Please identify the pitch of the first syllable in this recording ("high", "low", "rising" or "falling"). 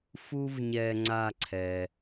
low